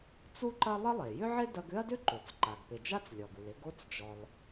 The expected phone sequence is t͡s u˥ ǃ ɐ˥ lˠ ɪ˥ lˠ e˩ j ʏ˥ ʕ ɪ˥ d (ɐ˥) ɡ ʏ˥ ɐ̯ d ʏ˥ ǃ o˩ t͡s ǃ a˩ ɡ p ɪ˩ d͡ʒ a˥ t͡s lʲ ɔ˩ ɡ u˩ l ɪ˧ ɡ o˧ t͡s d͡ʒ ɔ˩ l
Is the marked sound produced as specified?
no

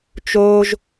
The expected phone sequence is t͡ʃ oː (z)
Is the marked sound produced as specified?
no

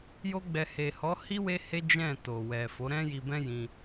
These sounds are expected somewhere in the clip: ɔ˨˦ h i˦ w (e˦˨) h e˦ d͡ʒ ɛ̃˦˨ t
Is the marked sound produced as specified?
no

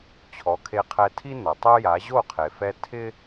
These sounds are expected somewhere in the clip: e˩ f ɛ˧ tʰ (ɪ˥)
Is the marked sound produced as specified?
yes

